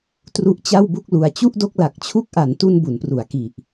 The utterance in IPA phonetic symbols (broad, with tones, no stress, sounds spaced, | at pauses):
t r u˦˥ ʔ t͡ɕ a˥˩ w b u˥˩ k̚ l u˧ a̯ t͡ɕ u˥˩ ʔ d o˥˩ k̚ l a˨˩ k̚ t͡ɕʰ u˥˩ k̚ ʔ a˩˦ n t u˧ n b u˩˦ n p r u˩˦ a̯ k i˨˩ ʔ